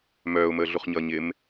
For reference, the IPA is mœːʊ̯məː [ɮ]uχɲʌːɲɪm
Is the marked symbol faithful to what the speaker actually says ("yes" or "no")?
yes